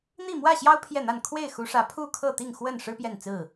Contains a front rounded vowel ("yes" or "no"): no